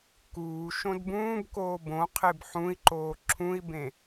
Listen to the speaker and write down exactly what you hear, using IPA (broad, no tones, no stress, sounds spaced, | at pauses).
k uː ʃ õ d b ũː b k oː b õ qʰ e b ħ ũ i̯ ǃ oː ǁʰ ũ i̯ b ẽ